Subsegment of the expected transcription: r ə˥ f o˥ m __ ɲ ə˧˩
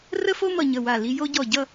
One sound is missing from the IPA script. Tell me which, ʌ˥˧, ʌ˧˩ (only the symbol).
ʌ˧˩